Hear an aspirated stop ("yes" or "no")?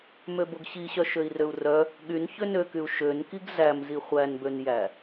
no